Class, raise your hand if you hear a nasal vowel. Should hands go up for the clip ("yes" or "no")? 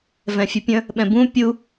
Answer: yes